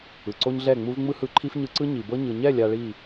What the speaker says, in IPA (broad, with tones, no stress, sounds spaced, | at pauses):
ɯ˨ ǀ o˦ ɲ ɮ ɛ˦˨ ŋ͡m u˦ v ŋ͡m ɯ˦ h ɯ˧ ǃʰ i˦ f ɲ ɯ˧ ǀ ɯ˦ ɲ i˨ b ɤ˦ ɲ ɯ˨ ɲ ɛ˦˨ lʲ a˧ ɭ i˦˨